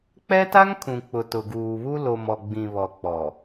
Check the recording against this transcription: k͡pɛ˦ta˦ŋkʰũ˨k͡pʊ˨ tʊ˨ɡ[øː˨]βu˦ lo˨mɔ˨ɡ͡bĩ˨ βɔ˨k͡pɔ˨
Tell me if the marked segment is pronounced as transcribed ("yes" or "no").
no